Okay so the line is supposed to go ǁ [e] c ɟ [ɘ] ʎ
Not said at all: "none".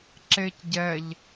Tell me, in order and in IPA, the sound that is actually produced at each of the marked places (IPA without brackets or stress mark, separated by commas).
e, ɛ